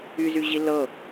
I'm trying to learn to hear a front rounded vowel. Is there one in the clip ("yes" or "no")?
yes